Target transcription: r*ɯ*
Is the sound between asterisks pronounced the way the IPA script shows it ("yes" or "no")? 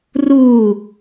no